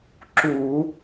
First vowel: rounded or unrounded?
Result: rounded